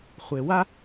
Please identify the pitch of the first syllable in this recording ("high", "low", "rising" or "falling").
low